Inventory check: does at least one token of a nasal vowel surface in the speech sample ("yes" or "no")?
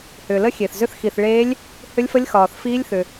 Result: no